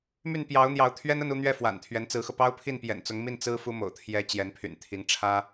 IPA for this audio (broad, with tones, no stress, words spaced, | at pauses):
my˥˩npjɑ˧˥ʊ̯n̪jɑ˧˥ʊ̯ t̪ʰɥɛ˥nə˥˧nu˥˧n̪ɥɛ˥˩ fwa̰˨˩nt̪ʰɥɛ˧˥nt͡sɹ̩˧˥xɤ˧ pɑ˥ʊ̯pʰi˥˩n pjɛ̰˨˩nt͡sʊ˧˥ŋmi˥˩n t͡sɹ̩˥fu˥mo̰˨˩ʊ̯t̪ʰjɛ˧˥ t͡ɕjɛ˧˥npʰy̰˨˩nt̪ʰi˧˥ŋ ʈ͡ʂʰä˥